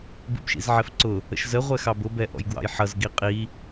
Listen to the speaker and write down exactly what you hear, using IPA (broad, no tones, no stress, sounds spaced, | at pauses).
b ḭ b ʃ ḭ z ʕ ɛ f ǀ ʊ | ə̰ ʃ z ə ʁʷ ɛ x ɑ b ʊ b ɛ ʔ ɔ̰ j ɡ w ɑ̰ j ħ ʌ z ɡ i qʼ i